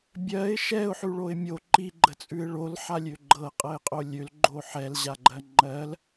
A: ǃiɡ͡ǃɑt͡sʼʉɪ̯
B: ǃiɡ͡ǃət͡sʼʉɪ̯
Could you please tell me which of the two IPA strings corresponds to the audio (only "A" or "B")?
B